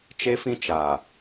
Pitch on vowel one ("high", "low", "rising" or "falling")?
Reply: high